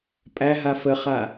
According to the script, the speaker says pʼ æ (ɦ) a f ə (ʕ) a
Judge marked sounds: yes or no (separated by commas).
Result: yes, no